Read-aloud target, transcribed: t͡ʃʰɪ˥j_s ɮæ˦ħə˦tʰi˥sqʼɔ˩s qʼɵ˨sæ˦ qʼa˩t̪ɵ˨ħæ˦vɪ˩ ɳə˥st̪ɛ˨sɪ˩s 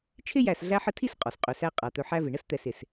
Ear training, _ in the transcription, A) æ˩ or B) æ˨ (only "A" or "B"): B